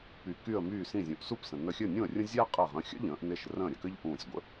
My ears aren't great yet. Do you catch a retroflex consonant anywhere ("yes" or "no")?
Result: no